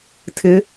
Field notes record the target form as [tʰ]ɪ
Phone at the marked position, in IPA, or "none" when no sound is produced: tʰ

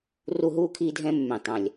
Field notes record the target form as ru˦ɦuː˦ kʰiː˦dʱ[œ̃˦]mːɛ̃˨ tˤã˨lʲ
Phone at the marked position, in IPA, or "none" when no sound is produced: ɛ̃˦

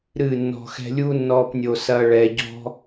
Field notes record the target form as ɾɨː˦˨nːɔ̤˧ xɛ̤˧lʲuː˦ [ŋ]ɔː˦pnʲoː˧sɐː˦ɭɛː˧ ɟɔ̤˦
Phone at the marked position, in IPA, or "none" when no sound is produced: nː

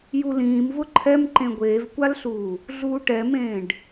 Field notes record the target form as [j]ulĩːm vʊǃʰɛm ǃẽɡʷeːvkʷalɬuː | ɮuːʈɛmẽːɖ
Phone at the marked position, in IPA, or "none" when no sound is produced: j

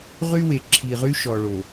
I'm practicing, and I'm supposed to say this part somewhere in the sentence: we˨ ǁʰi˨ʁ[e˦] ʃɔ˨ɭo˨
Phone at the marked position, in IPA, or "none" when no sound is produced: y˦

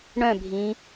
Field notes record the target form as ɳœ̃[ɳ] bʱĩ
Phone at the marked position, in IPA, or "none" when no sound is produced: none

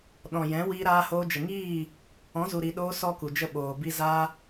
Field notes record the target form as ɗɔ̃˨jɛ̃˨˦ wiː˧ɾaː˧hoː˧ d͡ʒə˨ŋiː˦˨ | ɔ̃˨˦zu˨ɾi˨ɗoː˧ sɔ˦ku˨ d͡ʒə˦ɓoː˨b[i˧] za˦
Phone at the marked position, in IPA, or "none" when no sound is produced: i˦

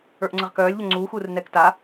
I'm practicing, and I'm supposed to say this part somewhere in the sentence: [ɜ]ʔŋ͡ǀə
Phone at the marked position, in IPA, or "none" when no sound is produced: ə˞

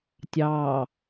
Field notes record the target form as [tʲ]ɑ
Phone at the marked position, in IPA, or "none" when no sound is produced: tʲ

